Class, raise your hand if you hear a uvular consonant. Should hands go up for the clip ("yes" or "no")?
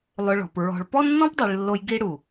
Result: no